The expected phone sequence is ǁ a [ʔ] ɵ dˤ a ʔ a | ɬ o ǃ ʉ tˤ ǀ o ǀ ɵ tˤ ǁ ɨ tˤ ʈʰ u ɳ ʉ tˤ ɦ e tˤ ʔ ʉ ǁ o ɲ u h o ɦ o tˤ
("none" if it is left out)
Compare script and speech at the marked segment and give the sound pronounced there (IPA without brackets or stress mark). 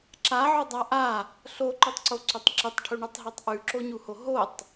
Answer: ʕ